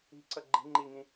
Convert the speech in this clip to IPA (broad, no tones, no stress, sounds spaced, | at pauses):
i̤ ǀ ʌ ɡ͡ǃ i̤ ŋ͡ǃ i ŋ ĩ